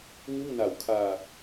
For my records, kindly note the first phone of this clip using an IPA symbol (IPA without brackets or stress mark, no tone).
ŋ